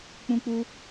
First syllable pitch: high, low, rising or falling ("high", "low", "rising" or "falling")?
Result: high